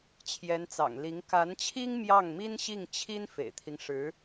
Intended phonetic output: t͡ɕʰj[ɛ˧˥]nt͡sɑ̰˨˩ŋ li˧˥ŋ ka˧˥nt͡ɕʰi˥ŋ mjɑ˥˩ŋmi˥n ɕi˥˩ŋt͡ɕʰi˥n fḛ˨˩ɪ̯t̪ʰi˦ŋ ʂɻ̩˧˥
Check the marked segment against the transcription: correct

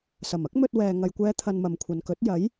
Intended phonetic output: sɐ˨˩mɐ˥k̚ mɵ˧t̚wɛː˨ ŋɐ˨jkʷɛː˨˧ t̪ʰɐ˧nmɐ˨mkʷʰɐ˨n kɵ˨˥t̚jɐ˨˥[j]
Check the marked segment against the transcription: correct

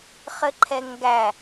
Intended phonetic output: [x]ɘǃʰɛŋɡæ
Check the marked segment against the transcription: incorrect: χ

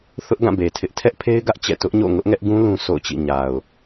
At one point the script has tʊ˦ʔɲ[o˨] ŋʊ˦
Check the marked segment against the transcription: incorrect: o̰˦˨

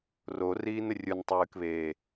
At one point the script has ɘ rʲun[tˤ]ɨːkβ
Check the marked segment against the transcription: correct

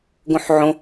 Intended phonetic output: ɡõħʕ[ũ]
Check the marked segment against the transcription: incorrect: õ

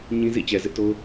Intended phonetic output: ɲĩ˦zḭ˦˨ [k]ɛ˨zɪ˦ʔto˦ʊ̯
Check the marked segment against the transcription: incorrect: t͡ɕ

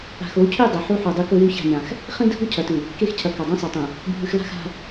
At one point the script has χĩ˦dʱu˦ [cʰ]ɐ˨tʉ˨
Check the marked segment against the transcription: correct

